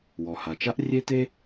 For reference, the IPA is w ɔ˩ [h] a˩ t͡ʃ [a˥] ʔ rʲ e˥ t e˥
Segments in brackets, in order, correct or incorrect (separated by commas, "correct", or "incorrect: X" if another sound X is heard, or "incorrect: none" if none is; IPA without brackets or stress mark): correct, correct